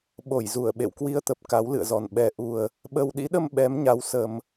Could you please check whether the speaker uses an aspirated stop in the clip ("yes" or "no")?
no